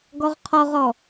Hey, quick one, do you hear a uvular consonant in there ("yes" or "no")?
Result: yes